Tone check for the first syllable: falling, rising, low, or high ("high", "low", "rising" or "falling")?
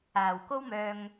low